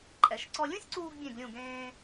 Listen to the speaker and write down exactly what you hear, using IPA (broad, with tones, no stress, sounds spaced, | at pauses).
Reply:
ǃʼ ɛ˩˧ ʃ ǀ ɔ˧ lʲ ũ˥ sʲ ǀ uː˧ ɡ bʲ ẽ˧˩ ɡ lʲ ũ˧˩ ɡ ẽː˧